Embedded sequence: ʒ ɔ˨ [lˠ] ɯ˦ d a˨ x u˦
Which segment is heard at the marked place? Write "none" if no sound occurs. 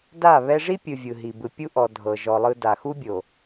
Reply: lˠ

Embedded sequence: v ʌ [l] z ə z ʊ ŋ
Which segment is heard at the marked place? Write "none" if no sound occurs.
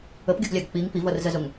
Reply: r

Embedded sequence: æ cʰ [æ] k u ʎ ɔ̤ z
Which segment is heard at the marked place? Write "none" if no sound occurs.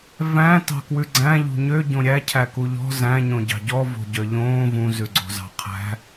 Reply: æ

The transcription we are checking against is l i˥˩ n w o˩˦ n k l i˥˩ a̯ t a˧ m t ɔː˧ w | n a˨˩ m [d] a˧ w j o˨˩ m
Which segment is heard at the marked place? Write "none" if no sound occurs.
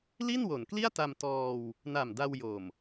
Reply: d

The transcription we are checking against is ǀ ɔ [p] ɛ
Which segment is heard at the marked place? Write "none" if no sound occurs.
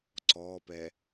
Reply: p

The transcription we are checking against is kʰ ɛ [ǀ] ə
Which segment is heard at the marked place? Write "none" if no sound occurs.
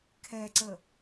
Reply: ǀ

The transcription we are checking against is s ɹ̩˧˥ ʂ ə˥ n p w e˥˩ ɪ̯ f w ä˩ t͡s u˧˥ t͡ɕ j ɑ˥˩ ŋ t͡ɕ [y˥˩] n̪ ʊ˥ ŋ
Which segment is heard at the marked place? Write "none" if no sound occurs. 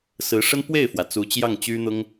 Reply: y˥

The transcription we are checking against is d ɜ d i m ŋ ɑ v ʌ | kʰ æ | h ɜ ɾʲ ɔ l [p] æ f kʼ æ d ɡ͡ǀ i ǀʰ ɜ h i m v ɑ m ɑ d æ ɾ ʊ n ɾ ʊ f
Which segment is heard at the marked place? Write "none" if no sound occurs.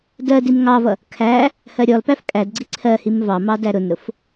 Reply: p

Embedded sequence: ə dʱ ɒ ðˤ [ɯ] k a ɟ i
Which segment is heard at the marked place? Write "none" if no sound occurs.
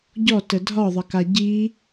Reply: ə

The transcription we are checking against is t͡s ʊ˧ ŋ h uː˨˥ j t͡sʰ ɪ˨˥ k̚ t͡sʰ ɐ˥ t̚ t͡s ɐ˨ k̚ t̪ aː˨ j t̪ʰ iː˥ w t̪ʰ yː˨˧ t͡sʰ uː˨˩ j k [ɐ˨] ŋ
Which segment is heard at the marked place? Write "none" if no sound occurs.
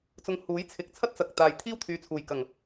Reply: ɐ˨˩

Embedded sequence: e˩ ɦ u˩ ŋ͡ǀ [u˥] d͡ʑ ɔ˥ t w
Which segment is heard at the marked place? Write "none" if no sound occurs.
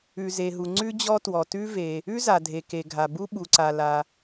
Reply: ʉ˥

